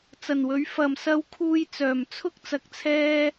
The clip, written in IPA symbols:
t͡s ɐ˨˩ n w ɵ˨˥ ɥ f ɐ˨ m s ɐ˧ w kʰ uː˧ j t͡s œː˨˩ m t͡sʰ ʊ˥ k̚ t͡s ɐ˧ k̚ t͡sʰ ɛː˥

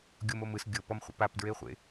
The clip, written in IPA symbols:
ɡʲ o m o m ɯ s ɡʲ ɤ p ɔ m χʷ ḭ p a p d ɹ e χʷ ḛ

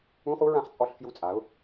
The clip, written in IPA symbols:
ũ˧˥˧ χ u˦˥ ɹ ã˧ χ t͡sʼ ɔ˧ ɬ f j u˧˩ t͡sʼ a˩˧ ʊ̯

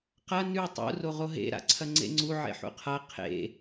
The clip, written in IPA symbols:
q ɐ n ʉ tˤ ṵ r o ʁ o ɦ ḛ ɾ a̰ ǀʰ ɐ ŋ͡ǀ ḛ ŋ͡ǀ u ʕ ḛ ħ ṵ qʰ a qʰ ḛ

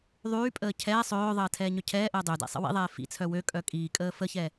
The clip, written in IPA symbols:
ðˤ yː pʼ əː cʰ ɛ sˤ øː ðˤ əː tʰ ɛː ɲ œ cʰ ɛː ʔ əː dˤ ø d ɛ̰ sˤ ə̰ w ḭ ðˤ ɛː f ḭ t͡sʰ œ w ø kʼ œ kʼ iː kʼ əː f ə ç ɛ

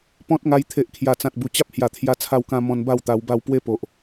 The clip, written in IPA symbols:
p ɔ̃˦ t̚ ŋ a˧ j t̪ʰ e˨ ʔ kʰ j a˨˩ t͡s ã˨ t̚ b u˨˩ t͡ɕ a˦ p̚ h j a˨˩ t̪ʰ j a˧ t͡sʰ a˧ w k ã˧ m ɔ̃˧ n b a˥˧ w t̪ a˧ w b a˥˧ w p w e˥˧ p o˨ ʔ

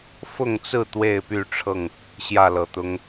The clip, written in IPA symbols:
f ʊ˥˨ ŋ t͡s ɹ̩˥˨ t̪ w e˥˨ ɪ̯ p y˥˨ ʈ͡ʂʰ ɤ˥˨ ŋ | ɕ j ä˥˨ l ɤ˨˩ t̪ ʊ˦ ŋ

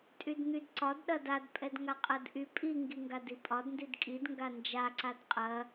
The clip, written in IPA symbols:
tʼ y d n̪ y d ǀ ɒ d ɗ ɐ d a d pʼ ɛ d ŋ a qʼ ɐ d ʔ y pʼ i ŋ ɡ i ŋ ɡ a d i pʼ ɒ d n d i d kʼ i d ŋ ɡ a n d͡ʒ a ǀ a d qʼ ɐ

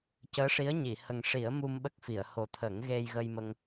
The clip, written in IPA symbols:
c əː˧˥ ʂ i˧˥ ə̯ ɲ i˨˩˨ h ə˨˩ ŋ ʂ i˨˩˦ ə̯ m u˧ m ɓ ə˦˥ k̚ f i˨˩˨ ə̯ h o˨˩ t̪ʰ ə˨˩˦ ŋ ɣ e˧ j ɣ ə˧ j m ə˧ ŋ

